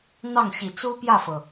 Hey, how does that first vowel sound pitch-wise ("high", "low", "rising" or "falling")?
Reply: falling